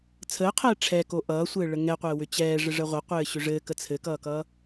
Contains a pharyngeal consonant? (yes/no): no